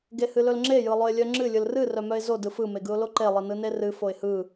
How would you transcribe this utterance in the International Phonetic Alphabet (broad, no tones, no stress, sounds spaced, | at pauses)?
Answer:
ɡ e h ɨ l ɵ l ŋ͡ǁ e j ɯ lˠ ɵ ɪ̯ lʲ œ ŋ͡ǁ ɨ lʲ ɯ l r ɨ r œ m œ ɪ̯ z o d ɯ f ɯ m e ɡ ɯ ʊ̯ l o ǃ e lˠ ɨ n ɯ n e r ɨ f o ɪ̯ h ɯ